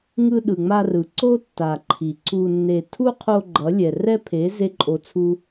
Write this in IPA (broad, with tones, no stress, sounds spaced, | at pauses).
ŋ ɯ˧ ɗ ɯ˨ ŋ͡m a˧ r ɯ˨ ǀ o˦ tː a˨ ǃʰ i˨ ǀ u˧ nː e˧ tʰ u˦ qʰ o˧ ɡ͡ǃ ʌ˨˦ lʲ ɛ˨ r ɛ˦ pʰ e˨˦ z e˦ ǃʼ o˧ t͡sʰ u˦